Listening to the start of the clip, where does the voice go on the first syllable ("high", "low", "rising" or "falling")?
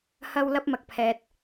high